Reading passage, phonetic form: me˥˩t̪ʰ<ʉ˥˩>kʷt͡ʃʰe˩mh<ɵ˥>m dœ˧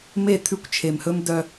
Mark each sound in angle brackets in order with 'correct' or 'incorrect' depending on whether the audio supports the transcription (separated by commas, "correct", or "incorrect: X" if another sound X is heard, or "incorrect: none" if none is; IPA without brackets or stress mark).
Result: correct, correct